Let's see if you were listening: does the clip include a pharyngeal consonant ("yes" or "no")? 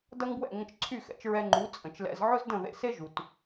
yes